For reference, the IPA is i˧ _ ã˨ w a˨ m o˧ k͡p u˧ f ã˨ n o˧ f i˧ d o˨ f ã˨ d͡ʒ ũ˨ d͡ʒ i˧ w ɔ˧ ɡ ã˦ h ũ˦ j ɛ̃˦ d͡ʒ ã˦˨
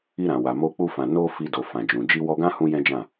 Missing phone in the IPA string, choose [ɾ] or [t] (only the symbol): ɾ